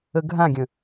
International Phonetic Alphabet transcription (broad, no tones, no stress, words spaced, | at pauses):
əɡʱãɡʲə̃